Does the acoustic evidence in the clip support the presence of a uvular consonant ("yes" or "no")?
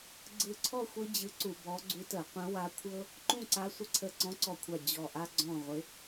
yes